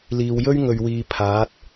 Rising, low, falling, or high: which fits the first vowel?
low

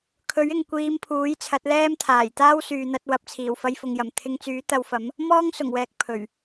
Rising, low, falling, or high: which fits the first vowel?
rising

